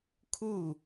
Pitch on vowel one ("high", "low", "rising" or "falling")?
falling